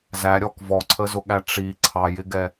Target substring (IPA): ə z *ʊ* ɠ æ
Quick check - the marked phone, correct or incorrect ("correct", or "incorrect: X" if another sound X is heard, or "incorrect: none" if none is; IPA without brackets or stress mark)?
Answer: correct